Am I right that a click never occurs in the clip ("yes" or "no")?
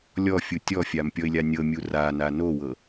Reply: yes